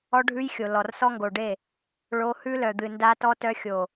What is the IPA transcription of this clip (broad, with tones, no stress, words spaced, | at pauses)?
ɔ˦ɖʱʉ˦jxʲo˨ lɔ˨rsɔ˦ŋɡo˨ɖe˦˨ | ɭo˦ hʉ˦lœ˨d̪ɨ˨ nda˦ tɔ˦tœ˦xʲo˨